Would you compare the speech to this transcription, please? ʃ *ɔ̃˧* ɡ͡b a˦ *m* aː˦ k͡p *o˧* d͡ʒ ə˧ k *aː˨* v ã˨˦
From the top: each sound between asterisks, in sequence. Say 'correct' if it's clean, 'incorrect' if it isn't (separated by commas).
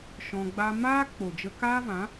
correct, correct, incorrect, incorrect